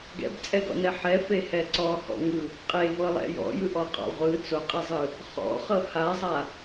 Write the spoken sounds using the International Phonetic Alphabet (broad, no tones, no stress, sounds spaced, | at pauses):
ɡ ɛ̰ b t͡sʼ ɛ ɡ ɔ̰ n ɛ ħ ɛ f e h ɛ ǀ ɔ h ɔ̰ ŋ ɯ | qʼ e v ɤ lˠ ɛ̰ j ɔ̰ j ɯ ʔ ɔ qʼ ɔ̰ ʁʷ ɯ t͡s o qʼ e zˤ ɯ | χ ɔ̰ χ ɤ h a zˤ a